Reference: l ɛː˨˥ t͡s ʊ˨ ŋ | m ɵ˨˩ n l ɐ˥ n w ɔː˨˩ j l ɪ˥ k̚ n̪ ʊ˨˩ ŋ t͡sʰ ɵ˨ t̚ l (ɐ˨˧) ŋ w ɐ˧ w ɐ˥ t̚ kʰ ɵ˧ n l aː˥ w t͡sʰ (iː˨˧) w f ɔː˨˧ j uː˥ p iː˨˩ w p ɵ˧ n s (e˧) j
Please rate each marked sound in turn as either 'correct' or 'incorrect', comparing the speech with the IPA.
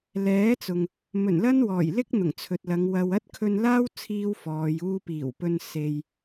correct, incorrect, correct

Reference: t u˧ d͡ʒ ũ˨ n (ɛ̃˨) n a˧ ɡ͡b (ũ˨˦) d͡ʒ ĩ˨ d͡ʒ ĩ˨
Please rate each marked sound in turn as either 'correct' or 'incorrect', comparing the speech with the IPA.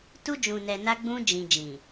incorrect, incorrect

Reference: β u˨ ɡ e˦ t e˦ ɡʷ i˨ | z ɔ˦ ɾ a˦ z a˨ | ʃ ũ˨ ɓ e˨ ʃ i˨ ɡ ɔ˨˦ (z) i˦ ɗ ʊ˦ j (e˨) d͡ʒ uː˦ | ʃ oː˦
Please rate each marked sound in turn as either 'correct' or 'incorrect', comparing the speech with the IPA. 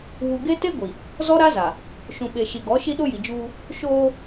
incorrect, incorrect

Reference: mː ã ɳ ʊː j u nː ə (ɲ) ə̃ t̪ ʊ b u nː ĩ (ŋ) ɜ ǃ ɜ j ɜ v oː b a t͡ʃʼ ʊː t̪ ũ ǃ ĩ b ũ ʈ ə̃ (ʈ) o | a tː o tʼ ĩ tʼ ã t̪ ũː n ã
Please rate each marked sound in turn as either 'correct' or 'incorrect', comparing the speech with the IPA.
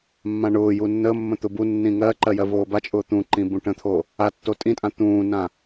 incorrect, correct, incorrect

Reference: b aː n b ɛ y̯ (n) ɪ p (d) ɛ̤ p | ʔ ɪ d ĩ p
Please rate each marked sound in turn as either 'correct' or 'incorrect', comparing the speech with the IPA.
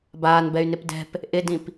correct, correct

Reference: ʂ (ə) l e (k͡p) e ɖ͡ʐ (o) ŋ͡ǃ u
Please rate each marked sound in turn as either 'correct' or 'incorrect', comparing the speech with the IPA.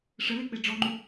correct, correct, incorrect

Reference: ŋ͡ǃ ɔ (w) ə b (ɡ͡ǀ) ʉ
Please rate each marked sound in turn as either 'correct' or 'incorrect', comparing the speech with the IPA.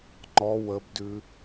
correct, incorrect

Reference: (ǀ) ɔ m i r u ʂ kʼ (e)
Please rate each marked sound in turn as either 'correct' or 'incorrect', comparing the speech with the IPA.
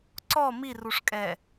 correct, incorrect

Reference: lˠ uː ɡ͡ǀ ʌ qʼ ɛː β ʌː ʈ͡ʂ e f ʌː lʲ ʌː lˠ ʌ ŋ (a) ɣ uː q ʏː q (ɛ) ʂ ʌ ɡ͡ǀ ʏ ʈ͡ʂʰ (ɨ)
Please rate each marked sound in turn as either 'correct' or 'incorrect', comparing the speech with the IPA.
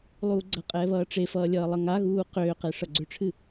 correct, correct, correct

